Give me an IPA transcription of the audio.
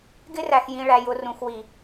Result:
ɡ ɪ˦ r æ˨ x j ĩ˨ ɭ æ˨ j ʊ˨ r ũ˨ x w i˨

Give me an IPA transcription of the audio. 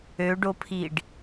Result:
ø ɖ o pʰ i ɖ

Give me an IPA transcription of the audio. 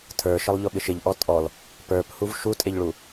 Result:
tʰ ə˞ ʃ ɪ lˠ ʎ ʊ ɓ ɪ ʃ ɪ ʎ ʔ ɔ tʼ ɔ l | p ə˞ p h u v ʃ u tʼ ɪ ʎ ɭ u

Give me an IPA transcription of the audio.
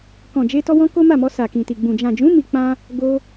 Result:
k ɔ̃˨ d͡ʒ e˧ t ɔ˧ w ɔ̃˧ k o˦ m a˦˨ m ɔ˧ s a˨ k ĩ˨ t i˨ ɡ͡b ũ˨ d͡ʒ ã˨ d͡ʒ ũ˨˦ m i˧ k͡p ã˦ | ɡ o˧

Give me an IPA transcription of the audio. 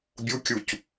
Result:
bʲ u kʲ u c

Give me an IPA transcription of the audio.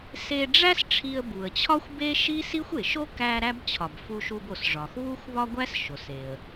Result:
s e˧ ɖ͡ʐ æ˥ s ʈ͡ʂʰ i˧ ə̯ b u˩ ə̯ t͡ɕʰ ɒ˥ xʷ b e˥ ʃ i˥ s i˥ xʷ e˩ ʃ o˥ k æ˧ ɾ æ˥ b t͡ɕʰ ɒ˩ b f u˧ ʃ u˧ b o˩ s ʐ ɒ˩ x β u˥ xʷ β ɒ˥ ɡʷ æ˥ s ʃ o˩ s e˩ ə̯

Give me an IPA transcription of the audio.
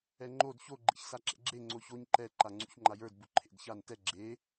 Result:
ɛ ŋ͡ǃ o d ç o ɡ͡ǃ ḛ ç s a ǁ ɛ̰ ɡ͡ǁ e ŋ͡ǀ o ç o ɲ ǃ ɛ ǃ a ŋ͡ǀ ṵ ç ŋ͡ǃ a j ə˞ d b u ǃʰ ḛ d ç a n t ɛ ɡ͡ǁ e

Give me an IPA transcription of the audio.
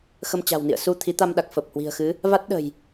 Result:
x ə˧ m t͡ɕ a̤˨˩ w n ḭ˧˨ ə̯ s u˧ t̪ʰ i˨˦ t̪ a˧ m ɗ a˨˩ k̚ f ə˨˩ p̚ h w i̤˨˩ ə̯ x ɨ˨˦ | v a˦˥ t̚ ɗ ə̤˨˩ j

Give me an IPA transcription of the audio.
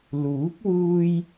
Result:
l uː˨˥ p̚ w uː˧ j

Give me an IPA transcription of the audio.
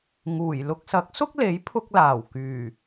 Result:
ŋ uː˨˩ j l ʊ˧ k̚ s ɐ˨˥ k̚ s ʊ˥ k̚ l e˨˥ j pʰ ʊ˧ k̚ l aː˨˩ w k yː˨˩

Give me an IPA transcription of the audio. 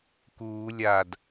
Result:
k uː lʲ a d

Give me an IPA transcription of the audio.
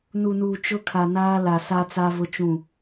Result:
n u˨ n uː˨ t͡ʃ ʊ˦ kʰ a˨ n aː˦ l a˨ s a˦ t͡s a˦ v ʊ˦ t͡ʃ ũ˦˨

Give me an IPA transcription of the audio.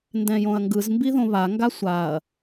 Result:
n d ɛ̃ j õ ɐ̯ ŋ ɡ ɯ z m b i ð õ β a ŋ ɡ a sʷ a ɐ̯

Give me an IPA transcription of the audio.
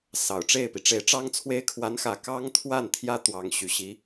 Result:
s ɑ˨˩ ʊ̯ ʈ͡ʂ e˥˩ ɪ̯ p i˩ ʈ͡ʂ e˧˥ ɪ̯ ʈ͡ʂ ɑ˥ ŋ t͡sʰ w e˥ ɪ̯ kʰ w a˧˥ n x ä˨˩ k ɑ˥ ŋ t̪ʰ w a˥˩ n t̪ʰ j ä˥ t̪ w ɑ˥ ŋ ɕ y˧˥ ɕ i˧˥

